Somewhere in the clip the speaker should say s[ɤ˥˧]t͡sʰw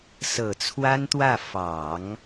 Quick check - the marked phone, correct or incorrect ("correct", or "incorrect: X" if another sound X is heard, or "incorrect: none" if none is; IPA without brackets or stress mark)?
incorrect: ɤ˨˩